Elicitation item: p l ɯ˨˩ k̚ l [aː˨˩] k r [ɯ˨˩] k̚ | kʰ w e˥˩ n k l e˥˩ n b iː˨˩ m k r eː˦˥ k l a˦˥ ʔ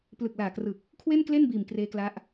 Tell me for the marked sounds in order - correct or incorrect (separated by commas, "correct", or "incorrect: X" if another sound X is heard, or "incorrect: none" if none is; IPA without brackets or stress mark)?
correct, correct